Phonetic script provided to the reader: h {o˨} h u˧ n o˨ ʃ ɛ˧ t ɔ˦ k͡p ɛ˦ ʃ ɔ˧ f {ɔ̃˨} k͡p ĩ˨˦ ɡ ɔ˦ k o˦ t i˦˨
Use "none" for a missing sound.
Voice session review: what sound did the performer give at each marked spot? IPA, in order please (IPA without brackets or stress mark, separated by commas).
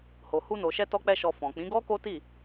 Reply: o˨, ɔ̃˨